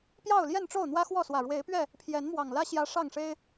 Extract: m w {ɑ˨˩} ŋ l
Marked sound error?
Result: no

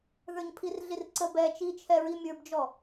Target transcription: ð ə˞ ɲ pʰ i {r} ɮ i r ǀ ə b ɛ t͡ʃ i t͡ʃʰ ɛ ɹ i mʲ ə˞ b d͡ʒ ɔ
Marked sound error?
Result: no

